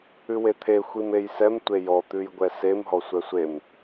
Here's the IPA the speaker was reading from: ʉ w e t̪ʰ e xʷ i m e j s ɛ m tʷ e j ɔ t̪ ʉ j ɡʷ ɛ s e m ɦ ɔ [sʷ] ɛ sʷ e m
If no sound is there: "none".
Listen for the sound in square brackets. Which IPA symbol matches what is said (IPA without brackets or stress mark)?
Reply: sʷ